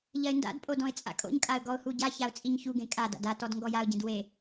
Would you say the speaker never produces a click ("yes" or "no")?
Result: yes